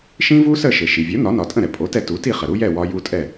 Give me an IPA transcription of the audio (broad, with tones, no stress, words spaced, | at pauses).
ʃĩ˥vu˥sə˥˩ ʃɘ˩ʃi˩vʲo˩˥ nɒ˩˥nɒ˩tʼə̃˥˩ɾɛ˩ pʼo˩˥tɛ˧ tu˩˥ti˥˩χə˩ ɾu˥jɛ˥˩ wɒ˧ ju˥˩tʼɛ˥˩